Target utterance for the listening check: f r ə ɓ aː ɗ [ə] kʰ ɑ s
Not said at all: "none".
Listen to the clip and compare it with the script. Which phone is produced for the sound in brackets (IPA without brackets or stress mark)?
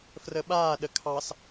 ə